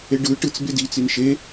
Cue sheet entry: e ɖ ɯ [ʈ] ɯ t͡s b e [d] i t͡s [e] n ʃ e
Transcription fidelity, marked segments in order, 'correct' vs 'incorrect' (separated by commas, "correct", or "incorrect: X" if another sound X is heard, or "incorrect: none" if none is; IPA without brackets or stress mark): correct, correct, incorrect: i